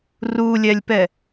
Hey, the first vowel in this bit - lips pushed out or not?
yes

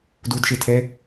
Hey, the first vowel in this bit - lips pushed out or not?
yes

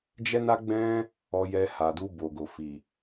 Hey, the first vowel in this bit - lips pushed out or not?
no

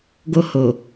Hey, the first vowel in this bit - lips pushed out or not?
yes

